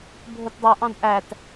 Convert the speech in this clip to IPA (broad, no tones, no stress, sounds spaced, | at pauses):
bʱ o t dˤ u ʔ ɑ̃ d ʔ æ t